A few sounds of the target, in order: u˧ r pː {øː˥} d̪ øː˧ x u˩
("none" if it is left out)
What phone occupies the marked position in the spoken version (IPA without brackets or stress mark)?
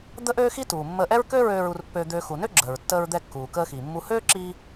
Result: øː˧